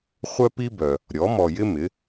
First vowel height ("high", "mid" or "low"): mid